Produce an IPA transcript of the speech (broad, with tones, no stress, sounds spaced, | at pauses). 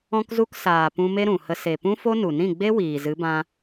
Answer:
ɔ̃˧ k z u˧ k s aː˨ p ũ˧ m e˦ ɾ ũ˨ h ə˧ s e˨ p ũ˦ f o˦ n u˨ n ĩ˦˨ ɡ͡b e˦ w iː˨ z ɨ˨˦ b ã˧